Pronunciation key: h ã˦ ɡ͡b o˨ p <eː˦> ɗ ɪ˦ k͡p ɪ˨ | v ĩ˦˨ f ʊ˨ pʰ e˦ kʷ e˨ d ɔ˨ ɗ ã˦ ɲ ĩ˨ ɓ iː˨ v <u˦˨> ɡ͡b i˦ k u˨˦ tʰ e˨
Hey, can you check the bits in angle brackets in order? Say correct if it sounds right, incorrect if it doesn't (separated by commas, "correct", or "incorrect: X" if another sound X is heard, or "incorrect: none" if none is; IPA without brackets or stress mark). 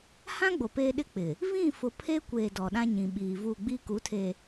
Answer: correct, correct